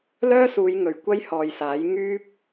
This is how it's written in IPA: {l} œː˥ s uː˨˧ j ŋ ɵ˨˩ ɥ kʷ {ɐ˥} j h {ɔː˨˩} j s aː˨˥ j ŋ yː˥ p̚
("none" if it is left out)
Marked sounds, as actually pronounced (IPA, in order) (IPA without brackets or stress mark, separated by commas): l, ɐ˥, ɔː˨